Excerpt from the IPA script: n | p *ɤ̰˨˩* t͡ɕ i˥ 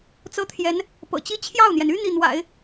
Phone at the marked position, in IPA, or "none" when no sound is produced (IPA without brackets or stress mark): ɤ̰˨˩